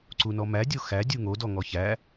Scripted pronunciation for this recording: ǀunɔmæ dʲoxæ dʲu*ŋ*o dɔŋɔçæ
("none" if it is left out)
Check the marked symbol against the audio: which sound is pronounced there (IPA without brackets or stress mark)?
ŋ